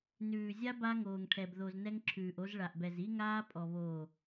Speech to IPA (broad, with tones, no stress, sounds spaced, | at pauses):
n ʉː˨ zʲ a˦ b a˦ ŋ oː˨ ŋ ʈʰ ɛ˨ b ð o˨ z n ɛ˦ ŋ ǁʰ ʉː˨ ʔ o˦ z ɭ a˨ ʔ b ɛ˨ z i˦ ŋ aː˦ pʼ ɔ˨ β oː˨